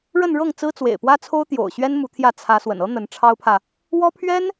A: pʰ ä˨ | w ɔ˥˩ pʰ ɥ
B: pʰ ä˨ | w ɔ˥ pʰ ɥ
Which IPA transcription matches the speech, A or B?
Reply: B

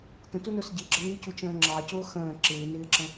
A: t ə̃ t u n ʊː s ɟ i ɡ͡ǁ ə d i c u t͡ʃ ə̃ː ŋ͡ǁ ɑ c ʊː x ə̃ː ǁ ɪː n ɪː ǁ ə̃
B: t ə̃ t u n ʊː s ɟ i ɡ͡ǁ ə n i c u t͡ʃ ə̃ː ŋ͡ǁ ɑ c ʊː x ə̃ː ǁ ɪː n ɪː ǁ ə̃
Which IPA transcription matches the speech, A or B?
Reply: B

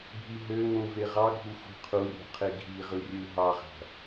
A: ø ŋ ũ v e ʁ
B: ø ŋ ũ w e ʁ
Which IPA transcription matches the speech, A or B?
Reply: A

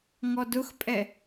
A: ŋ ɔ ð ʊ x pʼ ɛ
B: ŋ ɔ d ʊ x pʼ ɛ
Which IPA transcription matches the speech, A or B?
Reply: B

